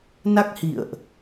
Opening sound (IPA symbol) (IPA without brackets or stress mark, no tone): n